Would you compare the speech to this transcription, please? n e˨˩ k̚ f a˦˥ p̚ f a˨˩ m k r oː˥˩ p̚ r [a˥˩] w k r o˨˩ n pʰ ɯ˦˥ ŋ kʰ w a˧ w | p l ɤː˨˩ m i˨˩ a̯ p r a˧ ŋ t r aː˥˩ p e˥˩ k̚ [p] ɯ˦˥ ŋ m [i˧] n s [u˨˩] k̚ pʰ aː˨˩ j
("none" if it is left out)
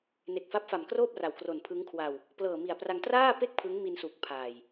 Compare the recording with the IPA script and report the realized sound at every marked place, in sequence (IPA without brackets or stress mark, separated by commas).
a˨˩, pʰ, i˧, u˨˩